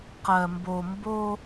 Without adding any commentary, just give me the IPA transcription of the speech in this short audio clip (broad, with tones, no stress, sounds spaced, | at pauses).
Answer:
q ɜ˨ m b o˨ m b o˦